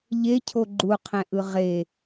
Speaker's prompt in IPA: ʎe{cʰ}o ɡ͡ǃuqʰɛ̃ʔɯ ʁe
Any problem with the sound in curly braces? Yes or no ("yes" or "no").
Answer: no